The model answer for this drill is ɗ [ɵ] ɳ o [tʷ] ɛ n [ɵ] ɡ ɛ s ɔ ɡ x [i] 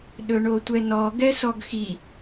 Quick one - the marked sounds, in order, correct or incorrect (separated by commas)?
correct, correct, incorrect, correct